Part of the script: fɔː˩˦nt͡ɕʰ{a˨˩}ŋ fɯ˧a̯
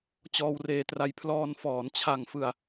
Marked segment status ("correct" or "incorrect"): correct